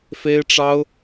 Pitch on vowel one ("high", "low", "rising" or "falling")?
high